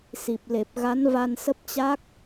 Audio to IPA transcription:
si˨˩p̚le˨˩p̚ɣa˨˦n va˧nsə˦˥p̚t͡ɕa˦˥k̚

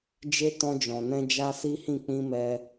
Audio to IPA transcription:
d͡ʒe˧ tɔ̃˧d͡ʒɔ̃˨nɛ̃˧ d͡ʒa˦si˦hĩ˦˨ k͡pĩ˧ mɛ˧

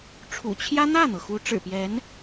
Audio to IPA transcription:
ʈ͡ʂʰṵ˨˩t͡ɕʰjä˥ n̪ä˥˩n̪ɤ˩ xu˧˥ʈ͡ʂɻ̩˨˩pjɛ˧˥n

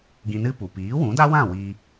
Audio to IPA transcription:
ɡĩ˧nɨ˦pu˨ piː˨˦wũ˨˦da˦wã˦˨ wi˧

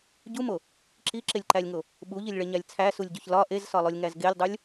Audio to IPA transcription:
ɟumo | ǁiǁelʲǃælʲŋo | ɓuʎilʲɭeɲælʲ t͡sʰæsulʲɟoç lɒ ʔezsɒlˠolʲŋæz ɡelʲdˤulʲ

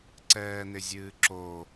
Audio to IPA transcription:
ǀɛːnɪzʲɨːǁo

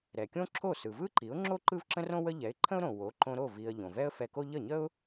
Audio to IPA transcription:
ɾɛ˩kʲõ˥ ǁʰo˥˩ sɯ˩vɯ˥ǃi˩˥ʊ̯ŋ͡ǁo˥ ǃɯ˥vǁə̃˥rõ˥ wə˥ ʎɛ˩˥ɪ̯ǃʰə̃˥ʊ̯ɾõ˩ wo˩˥ǃõ˧ɾo˥˩ vi˧ə̯ ʎõ˩vɛ˥ə̯fɛ˧ko˥ ʎə˥˩ɲə˥ʊ̯

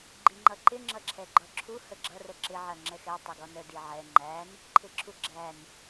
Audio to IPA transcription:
ɡ͡ǃiŋ͡ǃʌǃɪ ŋ͡ǁʌǁʰɛɡ͡ǃɒǁʰu həɡ͡ǁʌ rəǁɪ ʕɜŋ͡ǁɛxɛ tˤɪɡɔnə diʕɛ ŋ͡ǃæn | ǃʰɪǁʰuɡ͡ǁæn

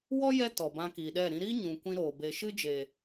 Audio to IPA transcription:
wɔ˦ jɛ˦tɔ˨bã˧ kiː˨ɗɛ˦˨ ɾĩ˧ɾiː˦ ɲũ˨kʷĩ˧ ɾoː˨ be˨ʃɨ˦d͡ʒe˨

